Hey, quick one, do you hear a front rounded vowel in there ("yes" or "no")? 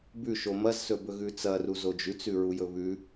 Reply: no